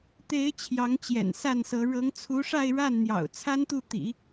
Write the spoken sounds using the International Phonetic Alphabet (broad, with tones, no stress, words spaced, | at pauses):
t̪e˧˥ɪ̯ t͡ɕʰjɑ˧˥ŋt͡ɕjɛ̰˨˩n sa˥˩nsɤ˧˥ ɻɤ˧˥ŋt͡sʰu˧˥ʂa˥˧ɪ̯ ɻa˥˩nn̪jɑ̰˨˩ʊ̯ t͡sʰa˥nt̪u˥˩t̪ḭ˨˩˦